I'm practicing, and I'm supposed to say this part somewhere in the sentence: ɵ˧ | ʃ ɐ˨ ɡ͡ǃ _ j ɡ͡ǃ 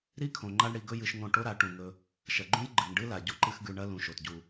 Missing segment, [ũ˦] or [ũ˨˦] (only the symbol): ũ˦